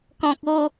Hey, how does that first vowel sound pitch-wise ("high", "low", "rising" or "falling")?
low